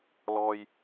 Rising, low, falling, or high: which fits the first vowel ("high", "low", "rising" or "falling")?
high